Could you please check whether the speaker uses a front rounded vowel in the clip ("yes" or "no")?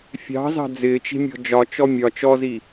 no